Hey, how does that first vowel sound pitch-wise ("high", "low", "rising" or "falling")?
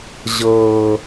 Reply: high